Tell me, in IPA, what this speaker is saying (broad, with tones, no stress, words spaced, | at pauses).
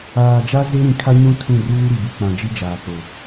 aː˨d͡ʒa˦ ze˦ɾĩ˨ kʰa˦ɲũ˦ tʰũ˦˨ruː˦ ɾi˨bi˨k͡pã˨ d͡ʒi˦d͡ʒaː˨k͡po˨